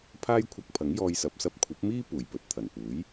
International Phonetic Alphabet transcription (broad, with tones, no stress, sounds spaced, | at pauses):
pʰ aː˥ j kʷʰ ɐ˧ k̚ pʰ ɐ˨˥ ŋ j ɔː˧ j s ɐ˨˥ p̚ s ɐ˧ p̚ kʷʰ ɐ˨˥ p̚ m iː˥ p uː˨˩ j p ɵ˨˥ t̚ t̪ʰ ɐ˨˩ n p uː˨˥ j